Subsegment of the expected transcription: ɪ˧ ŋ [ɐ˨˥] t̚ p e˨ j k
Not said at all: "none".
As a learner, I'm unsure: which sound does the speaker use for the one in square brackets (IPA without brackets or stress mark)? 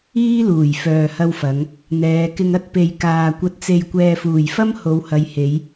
ɐ˥